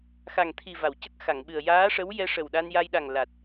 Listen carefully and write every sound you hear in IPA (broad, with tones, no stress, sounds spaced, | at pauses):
x a˨˩ ŋ t̪ʰ i˨˩ v a˨˩˨ w c ə˦˥ k̚ x a˨˩˨ ŋ ɓ ɨ˨˩ ə̯ j aː˧˥ ʂ ə˧˥ w j ɛ˧ ʂ ə˨˩ w ɗ a˧ n j a˧ j ɗ a˨˩ ŋ l a˨˩ t̚